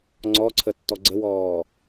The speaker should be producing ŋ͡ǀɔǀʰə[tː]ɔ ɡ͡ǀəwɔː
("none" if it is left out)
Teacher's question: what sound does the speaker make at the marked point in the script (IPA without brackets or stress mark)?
tː